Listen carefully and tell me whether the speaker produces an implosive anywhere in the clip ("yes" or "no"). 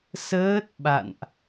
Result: yes